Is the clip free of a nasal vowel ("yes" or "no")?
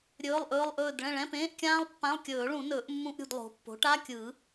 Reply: no